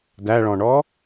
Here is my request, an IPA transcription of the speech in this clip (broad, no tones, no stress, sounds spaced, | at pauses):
d æ ɭ ɔ̃ ɳ ɔ